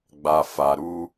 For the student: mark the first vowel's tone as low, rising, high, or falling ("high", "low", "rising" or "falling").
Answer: low